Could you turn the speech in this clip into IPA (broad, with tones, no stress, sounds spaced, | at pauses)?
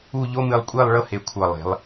u˥˧ ʎ o˥ m ɨ˧ lˠ kʷʼ e˥˧ lˠ ɭ ɤ˥ h e˧˩ kʷʰ ɤ˧˩ lˠ e̤˩˧ lˠ